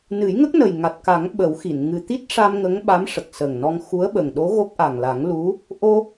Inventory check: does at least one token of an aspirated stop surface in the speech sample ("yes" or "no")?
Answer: no